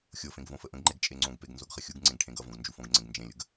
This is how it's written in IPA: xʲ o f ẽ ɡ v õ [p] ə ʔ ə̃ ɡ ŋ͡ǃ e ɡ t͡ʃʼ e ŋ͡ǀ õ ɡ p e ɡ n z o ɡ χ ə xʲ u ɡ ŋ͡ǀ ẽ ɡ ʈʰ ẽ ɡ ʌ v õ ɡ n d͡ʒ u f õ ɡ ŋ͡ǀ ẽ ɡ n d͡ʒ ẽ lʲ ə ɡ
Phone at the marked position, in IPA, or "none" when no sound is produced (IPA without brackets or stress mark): f